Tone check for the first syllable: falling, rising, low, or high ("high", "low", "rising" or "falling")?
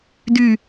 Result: low